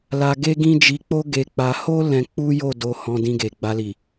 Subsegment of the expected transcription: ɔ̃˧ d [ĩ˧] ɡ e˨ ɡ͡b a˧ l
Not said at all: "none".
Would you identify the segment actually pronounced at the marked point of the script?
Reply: ĩ˧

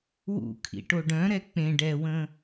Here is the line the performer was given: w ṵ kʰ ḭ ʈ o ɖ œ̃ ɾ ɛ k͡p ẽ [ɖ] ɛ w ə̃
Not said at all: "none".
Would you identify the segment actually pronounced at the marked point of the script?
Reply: ɖ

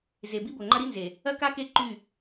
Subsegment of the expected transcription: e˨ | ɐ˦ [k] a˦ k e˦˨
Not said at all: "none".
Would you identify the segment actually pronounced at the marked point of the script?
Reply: k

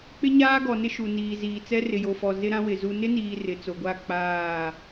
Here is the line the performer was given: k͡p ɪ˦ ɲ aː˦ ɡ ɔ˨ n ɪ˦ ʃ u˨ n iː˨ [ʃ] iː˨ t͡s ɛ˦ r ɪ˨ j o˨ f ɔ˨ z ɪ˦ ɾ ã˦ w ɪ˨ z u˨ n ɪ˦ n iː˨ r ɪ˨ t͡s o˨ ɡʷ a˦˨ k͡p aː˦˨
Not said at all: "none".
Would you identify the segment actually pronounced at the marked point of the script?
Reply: z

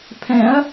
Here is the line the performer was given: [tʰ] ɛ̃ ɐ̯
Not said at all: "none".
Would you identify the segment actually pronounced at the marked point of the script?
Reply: pʰ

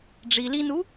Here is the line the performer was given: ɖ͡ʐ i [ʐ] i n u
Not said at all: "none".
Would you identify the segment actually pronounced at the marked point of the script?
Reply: l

